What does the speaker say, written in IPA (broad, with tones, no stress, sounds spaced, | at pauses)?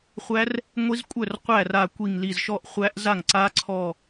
χʷ æ˦˥ r | ŋʷ i˦˥ z kʷʼ œ˥˩ r qʷ æ˥˩ r a˧˩ kʷ i˧˩ ŋ l i˧˩ z ʃ ɔ˥˩ ʔ χʷ æ˦˥ ʔ z a˥˩ ŋ ǀ a˦˥ ǀʰ ɔ˧˩